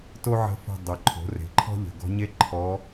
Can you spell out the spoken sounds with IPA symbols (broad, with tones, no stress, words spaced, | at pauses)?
to˥ʕə̤˦˨ fo̤˦˨ dˤɤ˨ ǃʰo̤˩˥re̤˩˥ǃʰɔ̤˥ʎə̤˨ ɡɔ̤˧˥ɲe˥ ǃʰɔ˧˥